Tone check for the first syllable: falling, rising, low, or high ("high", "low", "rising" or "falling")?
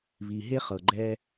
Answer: low